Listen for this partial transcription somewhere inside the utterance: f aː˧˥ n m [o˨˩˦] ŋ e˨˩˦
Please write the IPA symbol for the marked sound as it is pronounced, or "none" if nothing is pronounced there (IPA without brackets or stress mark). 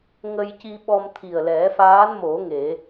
o˨˩˦